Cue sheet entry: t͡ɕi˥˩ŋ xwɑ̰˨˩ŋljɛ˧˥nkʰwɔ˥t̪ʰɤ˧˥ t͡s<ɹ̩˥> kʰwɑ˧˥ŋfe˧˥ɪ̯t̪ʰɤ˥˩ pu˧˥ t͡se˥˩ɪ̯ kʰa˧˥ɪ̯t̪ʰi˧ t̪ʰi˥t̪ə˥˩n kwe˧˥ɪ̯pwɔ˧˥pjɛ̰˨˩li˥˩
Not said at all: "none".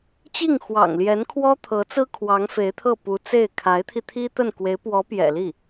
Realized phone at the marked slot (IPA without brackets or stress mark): ɹ̩˥